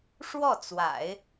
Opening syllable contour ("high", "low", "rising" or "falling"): falling